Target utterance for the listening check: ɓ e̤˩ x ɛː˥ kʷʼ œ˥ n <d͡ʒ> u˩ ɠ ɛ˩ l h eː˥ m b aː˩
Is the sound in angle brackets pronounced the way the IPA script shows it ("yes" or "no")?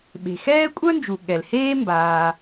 yes